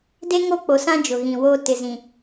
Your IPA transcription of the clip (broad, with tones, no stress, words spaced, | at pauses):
de˦ŋo˦˨k͡po˨sã˦ d͡ʒʊ˨ɣĩ˨woː˦ tɪ˨ zĩ˨